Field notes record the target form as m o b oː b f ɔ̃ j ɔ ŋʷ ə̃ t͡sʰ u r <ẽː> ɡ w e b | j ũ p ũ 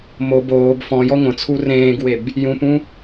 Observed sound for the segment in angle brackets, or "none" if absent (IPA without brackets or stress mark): ẽː